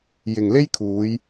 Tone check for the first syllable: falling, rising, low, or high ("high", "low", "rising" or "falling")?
low